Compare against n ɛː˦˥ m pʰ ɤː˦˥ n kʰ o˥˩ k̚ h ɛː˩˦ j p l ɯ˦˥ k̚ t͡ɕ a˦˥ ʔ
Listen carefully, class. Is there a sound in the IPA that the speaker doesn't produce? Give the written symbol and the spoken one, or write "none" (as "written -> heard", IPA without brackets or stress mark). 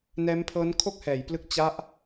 none